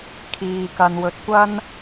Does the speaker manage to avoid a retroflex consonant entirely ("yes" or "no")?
yes